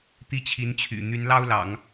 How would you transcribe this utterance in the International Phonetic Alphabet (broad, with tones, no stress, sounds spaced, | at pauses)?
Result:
t̪ i˥˩ t͡ɕʰ i˧˥ n t͡ɕʰ y̰˨˩ n̪ y˧˥ n l ɑ˥ ʊ̯ l ɑ̰˨˩˦ ŋ